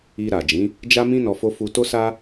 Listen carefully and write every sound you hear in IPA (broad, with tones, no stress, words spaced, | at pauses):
i˧ɾa˨d͡ʒĩ˨˦ | d͡ʒa˦mĩ˦ nɔ˧fo˦ fu˧ to˦sa˦